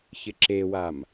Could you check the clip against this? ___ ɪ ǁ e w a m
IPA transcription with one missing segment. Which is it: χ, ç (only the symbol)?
ç